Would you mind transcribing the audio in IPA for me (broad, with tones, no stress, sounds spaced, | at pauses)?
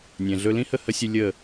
nʲ ɛ̃˨ ɮ ɵ˧ l ĩ˦ h ə˦˨ h ə˦ sʲ ɨ˧ lʲ ə˦˨